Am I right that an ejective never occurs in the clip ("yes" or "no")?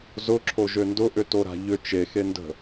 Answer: yes